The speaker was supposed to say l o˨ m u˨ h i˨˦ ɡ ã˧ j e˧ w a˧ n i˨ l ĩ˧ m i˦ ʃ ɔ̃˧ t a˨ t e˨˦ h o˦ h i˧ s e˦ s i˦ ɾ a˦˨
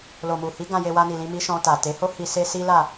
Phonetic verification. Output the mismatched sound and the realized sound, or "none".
ɾ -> l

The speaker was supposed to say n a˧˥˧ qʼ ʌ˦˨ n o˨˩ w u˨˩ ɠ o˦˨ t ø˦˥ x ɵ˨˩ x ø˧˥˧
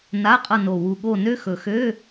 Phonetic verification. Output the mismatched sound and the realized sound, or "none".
t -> n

